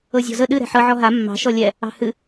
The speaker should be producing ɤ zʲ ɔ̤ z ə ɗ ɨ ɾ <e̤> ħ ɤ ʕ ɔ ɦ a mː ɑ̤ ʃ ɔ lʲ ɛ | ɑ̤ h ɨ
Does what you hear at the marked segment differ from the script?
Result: yes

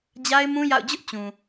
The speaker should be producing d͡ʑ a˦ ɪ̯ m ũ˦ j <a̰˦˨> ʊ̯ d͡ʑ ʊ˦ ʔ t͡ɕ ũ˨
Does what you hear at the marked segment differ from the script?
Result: no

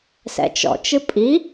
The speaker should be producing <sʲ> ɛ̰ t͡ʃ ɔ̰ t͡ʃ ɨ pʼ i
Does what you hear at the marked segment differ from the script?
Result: yes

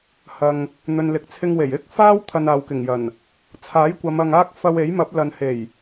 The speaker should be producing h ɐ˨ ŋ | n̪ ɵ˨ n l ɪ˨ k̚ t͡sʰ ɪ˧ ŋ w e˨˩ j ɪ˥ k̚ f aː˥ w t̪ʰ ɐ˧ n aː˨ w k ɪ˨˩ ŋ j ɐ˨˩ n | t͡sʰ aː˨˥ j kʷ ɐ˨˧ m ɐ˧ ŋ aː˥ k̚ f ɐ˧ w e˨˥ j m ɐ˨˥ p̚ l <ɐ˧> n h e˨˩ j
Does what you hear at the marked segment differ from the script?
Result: yes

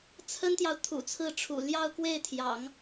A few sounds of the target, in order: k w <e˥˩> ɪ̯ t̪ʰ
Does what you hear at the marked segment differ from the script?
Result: no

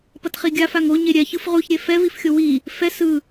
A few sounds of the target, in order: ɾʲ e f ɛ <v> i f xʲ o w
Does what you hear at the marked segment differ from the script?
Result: no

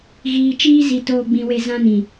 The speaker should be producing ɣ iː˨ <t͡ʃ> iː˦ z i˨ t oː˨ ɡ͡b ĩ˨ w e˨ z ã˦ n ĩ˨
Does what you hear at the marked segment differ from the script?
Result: no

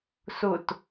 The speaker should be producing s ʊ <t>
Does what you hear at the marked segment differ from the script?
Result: no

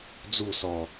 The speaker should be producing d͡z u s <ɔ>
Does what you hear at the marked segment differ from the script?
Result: no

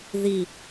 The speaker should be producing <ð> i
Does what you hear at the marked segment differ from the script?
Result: no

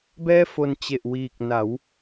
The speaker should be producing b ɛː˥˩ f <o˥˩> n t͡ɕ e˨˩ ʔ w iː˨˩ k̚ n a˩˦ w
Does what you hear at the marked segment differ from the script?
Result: yes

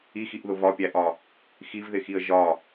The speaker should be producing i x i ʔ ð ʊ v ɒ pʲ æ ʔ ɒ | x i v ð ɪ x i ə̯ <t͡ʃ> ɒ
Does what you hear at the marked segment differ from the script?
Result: yes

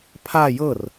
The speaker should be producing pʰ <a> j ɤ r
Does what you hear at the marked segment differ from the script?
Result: no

